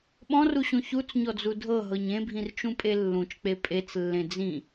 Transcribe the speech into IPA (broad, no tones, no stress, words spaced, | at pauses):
ɓɔ̃ruɕũ çut͡sɲɔd͡zu dʱɤɦɤɲ ẽbʱĩrt͡ʃũpʼe lːũt͡ʃk͡pe pʼet͡slːẽ d͡zĩ